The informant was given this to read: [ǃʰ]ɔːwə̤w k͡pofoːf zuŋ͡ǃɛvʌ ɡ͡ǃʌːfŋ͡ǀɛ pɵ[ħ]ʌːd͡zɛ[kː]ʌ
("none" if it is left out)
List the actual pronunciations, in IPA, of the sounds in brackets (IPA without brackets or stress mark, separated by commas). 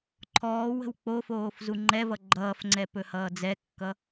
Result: ǃʰ, h, kː